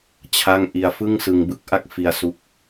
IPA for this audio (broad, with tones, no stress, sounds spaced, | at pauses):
t͡ɕʰ a˥˩ ŋ ʔ i˧ a̯ f ɯ˥˩ ŋ s ɯ˧ ŋ b ɯ˥˩ k̚ ʔ a˥˩ k̚ f i˧ a̯ s u˦˥ k̚